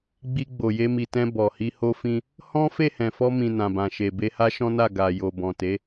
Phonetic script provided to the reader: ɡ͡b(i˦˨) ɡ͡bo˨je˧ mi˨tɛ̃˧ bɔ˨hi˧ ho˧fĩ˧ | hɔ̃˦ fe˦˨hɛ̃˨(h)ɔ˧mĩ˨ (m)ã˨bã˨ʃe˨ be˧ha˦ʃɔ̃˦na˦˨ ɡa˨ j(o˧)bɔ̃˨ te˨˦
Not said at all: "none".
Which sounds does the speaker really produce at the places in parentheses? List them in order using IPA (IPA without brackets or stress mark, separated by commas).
i˧, f, n, o˨